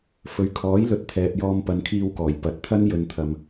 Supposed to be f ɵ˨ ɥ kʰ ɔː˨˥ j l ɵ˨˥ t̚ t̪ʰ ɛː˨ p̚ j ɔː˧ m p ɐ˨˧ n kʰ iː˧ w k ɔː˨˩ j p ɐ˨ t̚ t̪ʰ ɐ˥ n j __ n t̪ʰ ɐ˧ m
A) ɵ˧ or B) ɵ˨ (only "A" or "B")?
A